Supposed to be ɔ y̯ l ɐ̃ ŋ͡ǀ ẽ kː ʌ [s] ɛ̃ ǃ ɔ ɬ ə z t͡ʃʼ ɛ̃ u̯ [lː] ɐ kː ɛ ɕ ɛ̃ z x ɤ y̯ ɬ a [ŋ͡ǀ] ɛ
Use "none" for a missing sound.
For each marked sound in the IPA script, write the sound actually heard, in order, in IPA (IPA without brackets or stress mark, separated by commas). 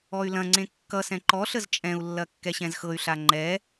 s, lː, ŋ͡ǃ